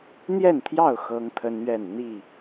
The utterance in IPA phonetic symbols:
n̪ j ɛ˥˨ n t̪ʰ j ɑ˥˨ ʊ̯ x ɤ˦ ŋ t̪ʰ ə˦ n ɥ ɛ˥˨ n n̪ i˥˨

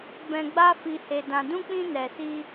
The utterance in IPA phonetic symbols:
b ɛ̃˧ ɡ͡b a˦ f i˧ h e˧ d ã˧ d ũ˦ k͡p ĩ˦ n ɛ˧ s i˦

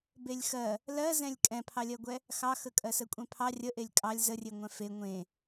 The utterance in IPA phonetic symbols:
b e lʲ x ɜ | l ɜ z ɛ̃ lʲ kʼ ɛ̃ pʰ ɑ lʲ ɜ ɡʷ ɛ | x ɑ x ə kʼ ɜ s ə kʷʼ ɛ̃ pʰ ɑ rʲ ə ʔ e lʲ kʼ ɑ lʲ z ə rʲ e ŋʷ ɛ̃ f e ŋʷ ẽ

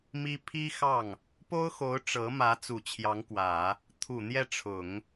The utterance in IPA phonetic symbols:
m i˥ pʰ i˥ x ɑ˥˩ ŋ | p o˥ ʊ̯ x o˧˥ ʊ̯ ʈ͡ʂ ɤ˧˥ m ä˧˥ t͡s u˨˩ t͡ɕʰ j ɑ˧˥ ŋ k w ä˨˩˦ | t̪ʰ u˨˩ n̪ j ɛ˥˩ ʈ͡ʂʰ ʊ˨˩˦ ŋ

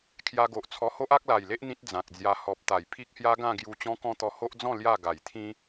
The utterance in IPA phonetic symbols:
kʰ j a˧ ɡ o˨ ʔ t͡sʰ ɔ˧ h o˦ ʔ a˦ k̚ l a˨˩ j l e˦ ʔ n̪ ĩ˦ t̚ d͡z ã˨ k̚ d͡z j a˧ h ɔ˨ p̚ t̪ a˨˩ j pʰ i˦ k̚ h j a˦ ɡ ã˥˧ ɡ j u˧ t͡ɕ ɔ̃˦ k ɔ̃˦ t̪ ɔ˧ h o˦ ʔ d͡z ɔ̃˥˧ l j a˥˧ ɡ a˨˩ j t̪ʰ ĩ˦

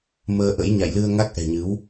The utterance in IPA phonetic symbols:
m əː˧ ʔ ə̰˧˥ j ɲ a̰˧˨ j l ɨ˧ ə̯ ŋ a˦˥ k̚ ʔ ɛ̤˨˩ ɲ ɨ˨˦ w

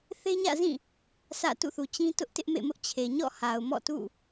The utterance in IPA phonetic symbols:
θ e˦ ɲ ä̰˦˨ z ĩ˦˨ | sʰ ä̰˦˨ t ṵ˦˨ θ u˨ t͡ɕ ĩ˦ t ʊ˦ ʔ t ɪ˦ ʔ m ḛ˦˨ m ʊ˦ ʔ t͡ɕʰ e˨ ɲ ɔ̰˦˨ h a˨ ʊ̯ m ɔ̰˦˨ t ṵ˦˨

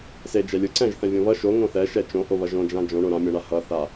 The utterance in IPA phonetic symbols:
s e d͡ʒ ɛ lʲ ɯ ǀ ɛ̃ ʒ θ ɛ̃ vʲ õ β ʌ ʃ o ŋ õ θ ɛ ʃ ɛ t͡ʃ õ ʔ o β ʌ ʒ õ d͡ʒ ã d͡ʒ õ ɳ o ɾ ã mʲ õ ɳ a h ʌ θ a

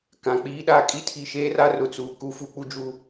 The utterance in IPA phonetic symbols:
k ã˨ k͡p iː˦ ɗ a˦ kʼ i˦ tʰ i˨ ʃ eː˦ r a˦ r ʊ˨ t͡s uː˨ k u˦ f u˦ k͡p u˦ d͡ʒ u˦˨

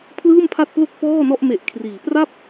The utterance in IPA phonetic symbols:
pʰ l ɯː˥˩ m pʰ a˥˩ t̚ p l o˥˩ k̚ p ɔː˥˩ n ɔ˥˩ ʔ m e˨˩ ʔ kʰ r iː˩˦ p r a˥˩ p̚

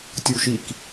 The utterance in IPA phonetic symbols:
tʲ u ʃ i k

